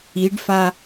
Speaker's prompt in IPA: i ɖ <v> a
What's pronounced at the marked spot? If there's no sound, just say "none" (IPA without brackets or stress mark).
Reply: f